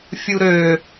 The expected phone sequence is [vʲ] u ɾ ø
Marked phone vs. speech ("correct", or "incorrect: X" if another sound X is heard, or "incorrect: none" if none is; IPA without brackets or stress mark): incorrect: fʲ